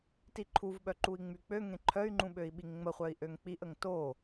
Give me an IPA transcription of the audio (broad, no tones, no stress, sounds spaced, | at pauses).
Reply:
t i ǃʰ u v ɓ œ ǃ u i̯ ŋ͡m y k͡p ø ŋ ẽ ǃʰ œ y̯ ŋ͡ǃ ũ ɓ ø i̯ ɓ i ŋ ŋ͡m ə χʷ œ i̯ ʔ ø ŋ k͡p i ʔ ə ŋ t o